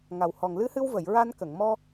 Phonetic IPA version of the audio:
ŋ a˨˩ w h ɔ˨˩ ŋ l ɨ˧˥ h ɨ˧ w v ə˨˩˨ j ɹ a˧ n k ə˨˩˨ ŋ m ɔ˧

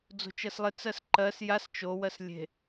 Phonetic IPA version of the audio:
d͡z o̤ t͡ʃ ɜ s lˠ ɪ t͡s ɜ s ǃ ɜ s j a s t͡ʃ o w ɜ s lʲ e̤

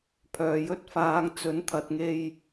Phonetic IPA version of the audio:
pʰ œː˧ j ɵ˥ t̚ f aː˨˧ ŋ t͡s ɵ˨˥ n t̪ʰ ɐ˨ t̚ ŋ e˧ j

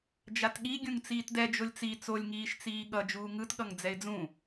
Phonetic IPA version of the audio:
d͡ʒ a t ɠ i ɡʲ ũ ŋ t͡s iː t d ɛ d͡ʒ o lʲ t͡s i t͡s o lʲ ŋ iː ʃ t͡s iː ɠ ʌ d͡ʒ uː ŋ ɯ t ɠ ʌ ŋ d͡z ɛ ɪ̯ d͡z ũ

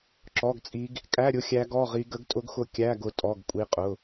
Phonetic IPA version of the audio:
ǁ ɔ˧˥˧ ɡ t͡sʼ i˦˥ ɡ | kʼ æ˧˥˧ ɾʲ ʊ˦˥ xʲ æ˦˥ ɡ ɔ˧˥˧ ʁ i˦˥ ɡ ə˦˥ ɡ tʼ ʊ˦˥ ɡ x ʊ˦˥ kʲ æ˧˥˧ ɡ ʊ˦˥ tʼ ɔ˧˥˧ ɡ kʷʼ i˦˥ qʼ ʊ˧˥˧

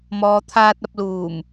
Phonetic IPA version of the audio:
m ɔː˨ t̪ʰ aː˧ t̚ ɐ˧ p̚ l uː˨˩ m

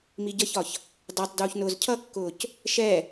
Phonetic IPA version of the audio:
m i ɟ ʌ ç ɒ ç | d ɑ tˤ d uː ç n ʊː z cʰ ʌ kː ʊː c | ʃ ɛ

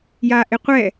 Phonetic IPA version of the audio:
j a ʔ ɪ qʷ ɛ

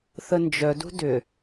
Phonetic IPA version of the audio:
θ ə n d͡ʒ œ d ṳ d ʏ

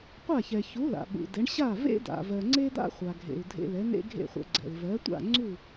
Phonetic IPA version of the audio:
qʷ a˥˩ ç ɛ˩ ç u˩˥ l a̰˩ ɓ ṵ˩ d ɛ˩˥ ɳ ɕ a˥˩ v ḛ˥ d a̰˩ v ɜ˩ ŋ͡ǀ e˥ d̪ a̰˥ χʷ a˩ ɡʱ ḛ˩ u̯ dʱ ḛ˧ l ɛ˩˥ n̪ ḛ˥ ɡʱ ḛ˥˩ χʷ ɛ̰˧ ɡ͡ǀ ɛ̰˩ l v ɜ˩˥ tʷ a̰˥˩ ŋ͡ǀ u˥˩

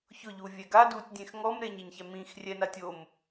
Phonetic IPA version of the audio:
ç ʊ ʎ u vʲ ɛ ɡ a d u tʲ dʲ ẽ x ŋ ɔ m ɾ e ɲ e ɲ ç ɛ m ĩ x rʲ ɛ n a tʲ o m

